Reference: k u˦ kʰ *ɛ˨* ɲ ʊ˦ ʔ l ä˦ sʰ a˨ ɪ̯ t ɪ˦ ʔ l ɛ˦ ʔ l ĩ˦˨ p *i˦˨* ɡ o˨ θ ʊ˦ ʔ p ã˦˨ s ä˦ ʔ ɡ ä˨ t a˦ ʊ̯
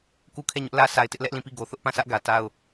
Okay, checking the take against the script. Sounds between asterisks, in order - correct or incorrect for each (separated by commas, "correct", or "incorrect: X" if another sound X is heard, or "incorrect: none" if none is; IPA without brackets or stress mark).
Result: incorrect: ɛ˦˨, correct